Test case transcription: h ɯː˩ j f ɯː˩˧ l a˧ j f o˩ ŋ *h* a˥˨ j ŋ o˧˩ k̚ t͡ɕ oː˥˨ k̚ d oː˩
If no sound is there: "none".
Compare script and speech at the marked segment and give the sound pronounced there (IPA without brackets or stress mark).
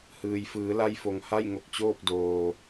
h